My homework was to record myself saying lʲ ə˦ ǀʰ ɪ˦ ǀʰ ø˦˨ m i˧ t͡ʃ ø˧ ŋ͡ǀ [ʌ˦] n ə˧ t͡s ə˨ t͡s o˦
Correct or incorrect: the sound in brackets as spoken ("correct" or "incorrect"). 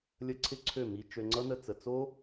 correct